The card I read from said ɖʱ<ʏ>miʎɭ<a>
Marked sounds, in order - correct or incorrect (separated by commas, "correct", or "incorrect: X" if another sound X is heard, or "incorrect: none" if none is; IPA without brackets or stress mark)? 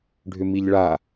correct, correct